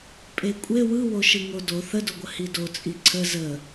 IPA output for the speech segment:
pʼ e kʷʼ e w ɯ w o ʃ ɯ ŋ o d o θ ə d o ɡʷ ə h i d o t͡sʼ i ǀʰ ə z ə

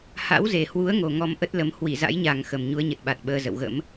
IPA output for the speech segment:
h a̰˧˥ w z e˨˩ h w u˨˦ ə̯ ŋ o˨˩ ŋ ɔ˧ m ʔ ə˦˥ t̚ l ə˨˦ m h w i˧˩ z a̰˧˥ j ɲ a˨˩ ŋ x ə˨˩ m ɲ u˨˦ ə̯ ɲ ə˨˩ t̚ ɓ a˨˩ t̚ ɓ əː˧ z ə̰˧˨ w ɣ ə̰˧˥ m

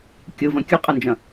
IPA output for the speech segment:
kʲ ɯ v ɐ̃ kʲ ɯ qʼ ɯ n d͡ʒ ɐ̃

